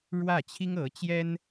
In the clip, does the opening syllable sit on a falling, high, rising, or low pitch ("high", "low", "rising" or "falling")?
falling